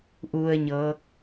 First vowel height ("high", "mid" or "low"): high